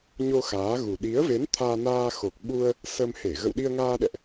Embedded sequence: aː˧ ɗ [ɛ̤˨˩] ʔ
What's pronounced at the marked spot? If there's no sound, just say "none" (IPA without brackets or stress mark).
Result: ɛ̰˧˨